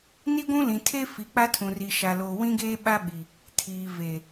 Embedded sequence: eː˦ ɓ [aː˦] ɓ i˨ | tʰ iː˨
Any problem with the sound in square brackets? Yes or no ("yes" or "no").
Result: yes